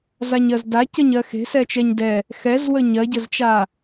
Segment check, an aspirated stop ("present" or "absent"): absent